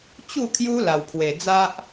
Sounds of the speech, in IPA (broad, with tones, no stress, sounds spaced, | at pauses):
t͡ɕ u˥˧ kʰ j u˦ l a˧ w pʰ w e˧ d͡z a˦ ʔ